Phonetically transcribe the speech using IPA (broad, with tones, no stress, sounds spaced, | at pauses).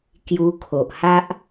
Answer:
k j u˧ kʰ o˨ ʔ h a˦ ʔ